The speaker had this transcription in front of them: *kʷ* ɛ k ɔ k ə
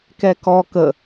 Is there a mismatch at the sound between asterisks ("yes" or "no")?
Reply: yes